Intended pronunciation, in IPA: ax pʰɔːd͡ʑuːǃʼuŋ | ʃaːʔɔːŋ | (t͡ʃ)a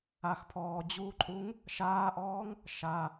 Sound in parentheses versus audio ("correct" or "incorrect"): incorrect